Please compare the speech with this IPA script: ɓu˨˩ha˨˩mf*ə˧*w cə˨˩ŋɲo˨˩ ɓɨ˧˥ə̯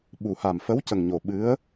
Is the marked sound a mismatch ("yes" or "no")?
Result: yes